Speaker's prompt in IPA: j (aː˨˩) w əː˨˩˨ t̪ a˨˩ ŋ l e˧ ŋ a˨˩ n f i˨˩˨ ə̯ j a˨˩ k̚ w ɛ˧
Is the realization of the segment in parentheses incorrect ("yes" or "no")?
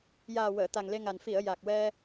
no